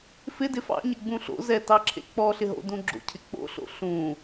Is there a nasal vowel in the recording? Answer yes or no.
yes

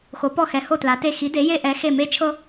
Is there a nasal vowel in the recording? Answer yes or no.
no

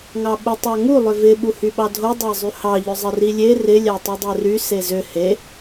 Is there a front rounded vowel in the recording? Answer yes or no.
yes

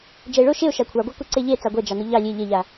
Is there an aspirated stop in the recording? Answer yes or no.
yes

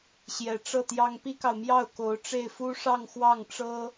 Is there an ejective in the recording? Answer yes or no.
no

